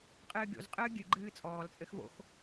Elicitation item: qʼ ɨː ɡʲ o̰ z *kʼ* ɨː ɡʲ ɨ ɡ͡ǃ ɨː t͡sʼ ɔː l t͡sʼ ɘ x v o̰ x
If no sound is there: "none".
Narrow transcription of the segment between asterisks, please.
qʼ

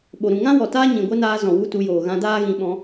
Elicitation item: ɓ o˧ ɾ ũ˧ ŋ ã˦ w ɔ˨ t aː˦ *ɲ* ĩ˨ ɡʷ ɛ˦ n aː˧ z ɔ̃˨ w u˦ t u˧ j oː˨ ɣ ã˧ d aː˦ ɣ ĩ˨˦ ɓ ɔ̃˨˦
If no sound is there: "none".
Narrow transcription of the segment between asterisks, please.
ɲ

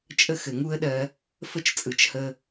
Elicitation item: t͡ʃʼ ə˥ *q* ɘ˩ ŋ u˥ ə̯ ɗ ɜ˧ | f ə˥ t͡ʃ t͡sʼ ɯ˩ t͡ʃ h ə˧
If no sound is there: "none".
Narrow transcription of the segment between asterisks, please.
x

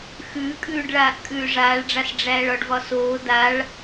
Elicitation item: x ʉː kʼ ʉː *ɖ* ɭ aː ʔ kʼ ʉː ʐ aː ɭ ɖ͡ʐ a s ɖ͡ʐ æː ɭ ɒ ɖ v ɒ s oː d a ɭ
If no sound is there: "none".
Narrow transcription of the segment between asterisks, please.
ɖ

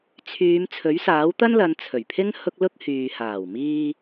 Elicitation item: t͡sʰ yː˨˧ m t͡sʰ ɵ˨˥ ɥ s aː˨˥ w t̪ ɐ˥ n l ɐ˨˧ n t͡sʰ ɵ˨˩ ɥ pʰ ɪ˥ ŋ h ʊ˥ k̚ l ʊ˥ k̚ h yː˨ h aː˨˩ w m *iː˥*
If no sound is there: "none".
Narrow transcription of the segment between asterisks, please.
iː˧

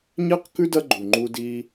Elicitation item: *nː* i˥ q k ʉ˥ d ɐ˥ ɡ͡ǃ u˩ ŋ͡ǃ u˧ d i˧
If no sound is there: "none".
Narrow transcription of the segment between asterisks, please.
ɲ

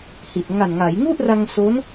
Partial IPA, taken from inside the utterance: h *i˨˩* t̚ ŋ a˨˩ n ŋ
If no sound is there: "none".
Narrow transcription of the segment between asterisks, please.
i˨˩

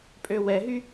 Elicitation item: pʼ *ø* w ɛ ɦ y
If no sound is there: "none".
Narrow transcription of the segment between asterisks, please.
ø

